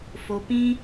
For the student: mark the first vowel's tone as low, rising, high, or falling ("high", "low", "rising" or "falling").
low